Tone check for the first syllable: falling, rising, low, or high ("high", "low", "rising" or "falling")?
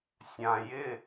low